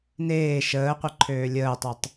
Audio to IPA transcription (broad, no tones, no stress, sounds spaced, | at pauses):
n eː ʃ əː qʷ e ǃʰ øː lʲ əː tˤ ø tˤ